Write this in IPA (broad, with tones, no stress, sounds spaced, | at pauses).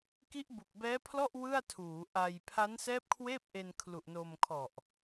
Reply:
k i˦˥ ʔ b u˨˩ k̚ b ɛː˦˥ pʰ l ɔ˥˩ ʔ w ɯ˥˩ a̯ tʰ uː˩˦ ʔ a˧ j pʰ a˦˥ n s ɛː˦˥ p̚ kʰ w eː˥˩ p̚ ʔ e˧ n kʰ l u˨˩ ʔ n o˧ m kʰ ɔ˨˩ ʔ